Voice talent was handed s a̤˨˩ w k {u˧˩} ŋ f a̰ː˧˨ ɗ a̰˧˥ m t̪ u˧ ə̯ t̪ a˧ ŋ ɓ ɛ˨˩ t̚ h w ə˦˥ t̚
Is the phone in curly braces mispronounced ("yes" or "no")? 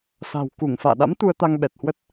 no